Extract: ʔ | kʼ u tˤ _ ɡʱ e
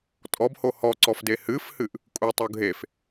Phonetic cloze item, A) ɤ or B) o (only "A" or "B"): B